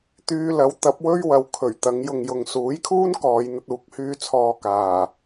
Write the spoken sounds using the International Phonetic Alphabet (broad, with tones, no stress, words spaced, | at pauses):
t̪yː˧lɐ˨˥wt̪ɐ˨˥p̚ wɵ˥ɥwɐ˨˧w kʰɵ˨˩ɥ t̪ɐ˨˧ŋ jʊ˨ŋjʊ˨ŋ suː˨˥jkʰuː˥n kɔː˨˧jn̪ɐ˧t̚uː˨˥k̚ hyː˧t͡sʰɔː˨ kaː˨˩